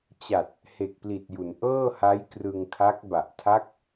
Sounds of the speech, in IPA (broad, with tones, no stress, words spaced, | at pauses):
t͡ɕa˨˩t̚ | he˨˩k̚pli˨˩t̚ju˩˦n ʔɤː˥˩ha˦˥jkrɯ˧ŋkʰa˦˥k̚ ba˨˩ʔtʰa˦˥k̚